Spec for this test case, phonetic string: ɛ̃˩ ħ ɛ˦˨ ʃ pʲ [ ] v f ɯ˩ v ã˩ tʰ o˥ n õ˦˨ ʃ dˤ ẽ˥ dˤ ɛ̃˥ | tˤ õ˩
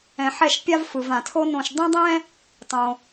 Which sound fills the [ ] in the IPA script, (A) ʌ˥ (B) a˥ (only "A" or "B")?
B